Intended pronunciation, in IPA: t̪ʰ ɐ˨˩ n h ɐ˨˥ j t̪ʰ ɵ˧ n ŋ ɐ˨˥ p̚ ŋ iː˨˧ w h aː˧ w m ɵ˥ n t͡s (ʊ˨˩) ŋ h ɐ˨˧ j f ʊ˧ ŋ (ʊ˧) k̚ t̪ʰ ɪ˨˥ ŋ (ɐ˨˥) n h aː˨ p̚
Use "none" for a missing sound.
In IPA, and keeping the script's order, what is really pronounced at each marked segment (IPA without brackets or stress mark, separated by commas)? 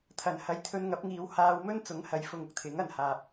ʊ˨˥, ʊ˧, ɐ˨˩